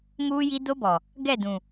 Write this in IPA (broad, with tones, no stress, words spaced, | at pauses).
ŋuː˦ji˦ do˦bɔ˨ | ɡɛ˦˨dũ˨